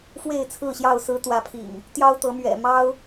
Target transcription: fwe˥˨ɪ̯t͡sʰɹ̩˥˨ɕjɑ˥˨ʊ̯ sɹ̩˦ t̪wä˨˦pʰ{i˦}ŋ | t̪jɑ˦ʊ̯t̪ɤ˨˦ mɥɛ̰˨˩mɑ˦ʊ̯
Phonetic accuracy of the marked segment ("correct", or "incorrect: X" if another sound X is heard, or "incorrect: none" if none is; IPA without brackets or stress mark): incorrect: ḭ˨˩